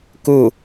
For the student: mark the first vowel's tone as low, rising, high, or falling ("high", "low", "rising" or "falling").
falling